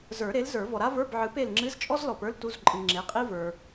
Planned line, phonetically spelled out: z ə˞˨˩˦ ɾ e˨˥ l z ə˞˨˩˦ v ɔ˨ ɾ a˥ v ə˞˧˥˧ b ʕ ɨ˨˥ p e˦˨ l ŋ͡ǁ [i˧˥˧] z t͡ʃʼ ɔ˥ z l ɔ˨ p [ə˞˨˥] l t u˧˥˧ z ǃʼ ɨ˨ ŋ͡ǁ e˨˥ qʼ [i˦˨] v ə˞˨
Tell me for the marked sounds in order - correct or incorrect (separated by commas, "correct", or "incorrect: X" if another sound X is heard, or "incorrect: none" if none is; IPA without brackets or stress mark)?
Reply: incorrect: ɨ˧˥˧, incorrect: ə˞˥, incorrect: i˥